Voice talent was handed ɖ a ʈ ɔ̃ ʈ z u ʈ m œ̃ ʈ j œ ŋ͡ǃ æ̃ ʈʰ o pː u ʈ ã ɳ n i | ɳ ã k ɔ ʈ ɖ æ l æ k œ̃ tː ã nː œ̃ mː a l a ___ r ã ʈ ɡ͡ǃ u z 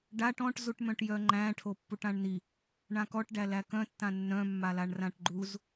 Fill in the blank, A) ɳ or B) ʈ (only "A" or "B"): A